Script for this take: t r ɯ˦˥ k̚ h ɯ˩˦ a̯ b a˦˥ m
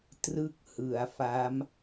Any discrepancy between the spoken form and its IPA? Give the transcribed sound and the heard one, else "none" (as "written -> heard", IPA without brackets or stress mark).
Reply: b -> f